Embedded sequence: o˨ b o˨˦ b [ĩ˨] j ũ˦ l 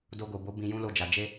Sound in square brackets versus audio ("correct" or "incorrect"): incorrect